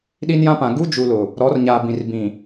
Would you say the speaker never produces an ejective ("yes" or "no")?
yes